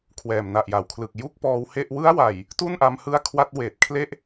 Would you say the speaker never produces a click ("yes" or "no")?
yes